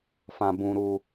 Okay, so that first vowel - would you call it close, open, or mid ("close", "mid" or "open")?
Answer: open